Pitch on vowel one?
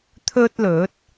high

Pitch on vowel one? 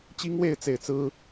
high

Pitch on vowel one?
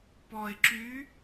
low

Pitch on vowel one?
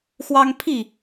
high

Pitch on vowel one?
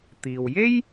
low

